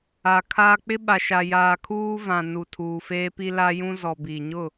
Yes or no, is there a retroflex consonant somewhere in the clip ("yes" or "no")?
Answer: no